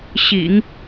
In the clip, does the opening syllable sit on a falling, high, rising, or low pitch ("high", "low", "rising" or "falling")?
low